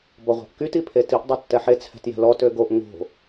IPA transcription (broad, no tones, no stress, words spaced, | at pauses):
bɔʁʷa̤ʔkyt ipʰetiʔ dˤøtːɛħe t͡sʰɛ̤tjɛ̤lɔ tøɡoʔ ŋo̤